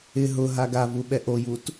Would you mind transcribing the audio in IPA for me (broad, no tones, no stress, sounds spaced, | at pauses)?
ɪ ɦ ʊ ɦ a ɡ a v u ɓ ɛ ʔ o j u t